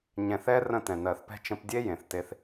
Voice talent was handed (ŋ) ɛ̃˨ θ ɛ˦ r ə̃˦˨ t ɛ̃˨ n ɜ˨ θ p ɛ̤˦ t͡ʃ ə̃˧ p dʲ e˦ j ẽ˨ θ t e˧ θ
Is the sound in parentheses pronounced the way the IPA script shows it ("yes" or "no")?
no